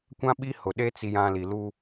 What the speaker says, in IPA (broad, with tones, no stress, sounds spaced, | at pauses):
kʷ ã˦ ɓ i˦ h ʊ˨ ɗ e˦ t͡s i˦ j ã˦ l i˨ l u˦